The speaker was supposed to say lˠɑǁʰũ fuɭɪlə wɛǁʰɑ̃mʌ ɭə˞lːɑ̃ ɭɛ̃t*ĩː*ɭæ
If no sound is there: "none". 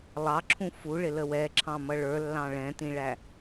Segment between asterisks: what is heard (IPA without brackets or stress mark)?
ĩ